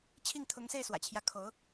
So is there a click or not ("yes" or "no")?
no